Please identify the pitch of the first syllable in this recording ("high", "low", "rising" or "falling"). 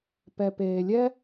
low